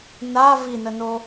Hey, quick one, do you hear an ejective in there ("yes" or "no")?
no